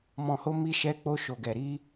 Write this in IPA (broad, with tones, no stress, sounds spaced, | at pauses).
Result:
m ɔ̃˨ h o˧ m i˧ ʃ ɛ˧ k͡p o˧ ʃ o˨ ɡ ɛ˨ ɾ i˧